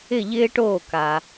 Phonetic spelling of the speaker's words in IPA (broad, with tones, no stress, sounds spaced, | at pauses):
ɪ˧˩ ʎ ɪː˧ ʈ oː˧˩ k a˩